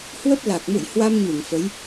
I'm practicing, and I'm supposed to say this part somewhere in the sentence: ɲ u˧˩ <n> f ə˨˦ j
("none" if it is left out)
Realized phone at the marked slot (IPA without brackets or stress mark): ŋ